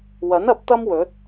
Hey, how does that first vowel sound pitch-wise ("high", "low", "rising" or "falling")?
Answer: rising